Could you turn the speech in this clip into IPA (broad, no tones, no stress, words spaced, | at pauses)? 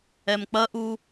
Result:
ɛmk͡pɐʔu